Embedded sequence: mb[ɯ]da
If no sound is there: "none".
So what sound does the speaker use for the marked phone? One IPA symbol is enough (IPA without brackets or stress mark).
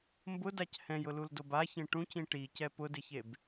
ʊ